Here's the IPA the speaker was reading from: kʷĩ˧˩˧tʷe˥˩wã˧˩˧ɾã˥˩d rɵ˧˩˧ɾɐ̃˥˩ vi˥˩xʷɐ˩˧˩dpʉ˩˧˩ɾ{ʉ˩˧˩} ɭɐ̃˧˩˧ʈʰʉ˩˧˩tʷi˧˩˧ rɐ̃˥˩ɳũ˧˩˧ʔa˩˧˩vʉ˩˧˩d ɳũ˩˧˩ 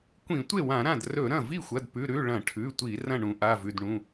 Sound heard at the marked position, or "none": ʉ˩˧˩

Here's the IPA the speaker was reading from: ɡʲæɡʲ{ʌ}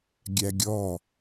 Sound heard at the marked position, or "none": ɔ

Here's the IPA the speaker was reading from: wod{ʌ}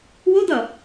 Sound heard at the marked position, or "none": ʌ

